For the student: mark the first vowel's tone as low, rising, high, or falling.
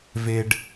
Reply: low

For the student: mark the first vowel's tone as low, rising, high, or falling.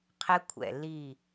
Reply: high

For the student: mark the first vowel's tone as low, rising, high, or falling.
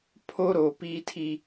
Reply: high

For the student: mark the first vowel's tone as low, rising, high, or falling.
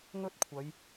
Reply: high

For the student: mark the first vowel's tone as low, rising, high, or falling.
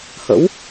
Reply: rising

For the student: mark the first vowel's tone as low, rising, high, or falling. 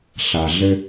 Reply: low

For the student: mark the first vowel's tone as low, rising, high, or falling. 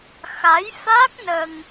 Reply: rising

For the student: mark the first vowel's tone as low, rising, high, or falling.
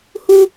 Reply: high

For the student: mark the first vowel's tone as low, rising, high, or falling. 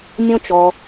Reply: high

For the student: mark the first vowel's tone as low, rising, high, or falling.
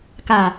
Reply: low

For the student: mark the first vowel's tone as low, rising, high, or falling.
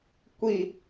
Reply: falling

